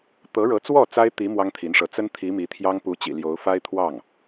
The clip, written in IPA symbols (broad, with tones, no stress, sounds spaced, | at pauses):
t̪ ɤ˧˥ ɻ ɤ˧˥ t͡s w ɔ˥˩ t͡s a˥ ɪ̯ t̪ i˧˥ m w ɑ˥ ŋ t̪ʰ i˧˥ n ʂ ɤ˧˥ t͡s ə˥ n t̪ʰ i˧˥ m i˧˥ t̪ʰ j ɑ˥ ŋ p u˧˥ t͡ɕ ḭ˨˩ l j o˧˥ ʊ̯ f a˥ ɪ̯ t̪ʰ w ɑ˥˩ ŋ